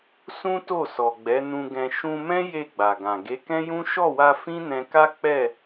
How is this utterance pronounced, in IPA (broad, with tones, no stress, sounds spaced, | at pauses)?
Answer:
s ũ˦ t o˦˨ s ɔ˨ ɡ͡b ɛ˨˦ n ũ˧ ɡ ɛ̃˧ ʃ ũ˧ m ɛ̃˦ j e˦˨ ɡ͡b a˨ ɡ ã˨ ɡ e˨˦ k ɛ̃˦ j ũ˦ ʃ ɔ˦˨ w a˧ f ĩ˦ n ɛ̃˧ k a˦ k͡p ɛ˦˨